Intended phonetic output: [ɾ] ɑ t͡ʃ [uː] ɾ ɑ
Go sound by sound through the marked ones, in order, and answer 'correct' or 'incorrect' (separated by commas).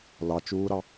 incorrect, correct